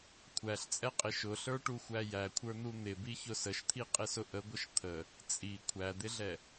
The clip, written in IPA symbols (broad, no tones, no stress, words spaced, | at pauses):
kʷʰæɬt͡sʼɛqʼɪ ʃʊɬə˞ʈuxʷæ jækʷʰə˞n̪u n̪ɪbiçʊ səʃt̪ʰiqʼɪsʊ ʔəɡʷəʃ t̪ʰə | t͡sʼi kʷʰæd̪ɪɮɛ